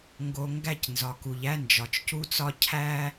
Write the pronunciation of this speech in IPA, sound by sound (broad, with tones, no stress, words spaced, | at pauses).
ŋɡo˨ ŋɡæ˦˨cnzɒ˨ku˨ʎæ˦ nd͡ʒɒ˨t͡ʃcu˦t͡sɒ˦ cʰæ˦